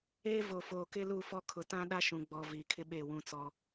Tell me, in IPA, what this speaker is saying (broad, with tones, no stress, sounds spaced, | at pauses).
eː˦ v o˨ f oː˨ k ɪ˦ l u˦˨ f ɔ˦ kʰ ʊ˨ t ã˦ ɗ a˦ ʃ ũ˨ ɡ͡b ɔ˨ v iː˨ kʰ ɪ˦ ɓ e˦˨ w ũ˦ t͡s ɔ˦